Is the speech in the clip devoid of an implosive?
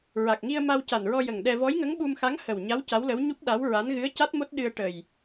no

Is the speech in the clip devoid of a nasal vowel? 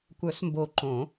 no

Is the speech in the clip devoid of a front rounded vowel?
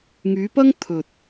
no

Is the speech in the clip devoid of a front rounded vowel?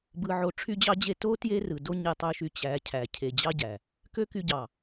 no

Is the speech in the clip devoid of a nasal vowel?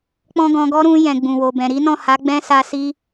no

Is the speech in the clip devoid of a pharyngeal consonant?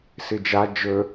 yes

